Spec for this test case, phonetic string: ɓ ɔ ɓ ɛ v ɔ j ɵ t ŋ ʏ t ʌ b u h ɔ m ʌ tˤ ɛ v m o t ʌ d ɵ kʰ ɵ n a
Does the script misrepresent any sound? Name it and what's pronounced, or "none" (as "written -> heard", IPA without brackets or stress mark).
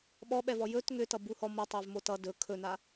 none